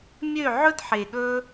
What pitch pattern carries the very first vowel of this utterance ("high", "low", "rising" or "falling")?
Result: falling